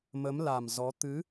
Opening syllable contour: rising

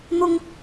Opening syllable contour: high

